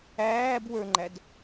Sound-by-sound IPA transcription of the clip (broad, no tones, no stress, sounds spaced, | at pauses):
æː b w ə˞ ŋ͡ǃ æ d